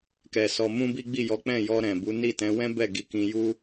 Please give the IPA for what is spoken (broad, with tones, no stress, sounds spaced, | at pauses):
k ɛ˧ s ɔ˧ m ũ˦ b i˦ ɡ͡b i˦˨ j ɔ˨˦ k͡p ɛ̃˦˨ j ɔ˧ ɾ ɛ̃˨ b u˨˦ n i˦˨ t ɛ̃˨˦ w ɛ̃˦ b ɛ˦˨ ɡ i˧ k ĩ˧ j u˦